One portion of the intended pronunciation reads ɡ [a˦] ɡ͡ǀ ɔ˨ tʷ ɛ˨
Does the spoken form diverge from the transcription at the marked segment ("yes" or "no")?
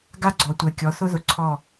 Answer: no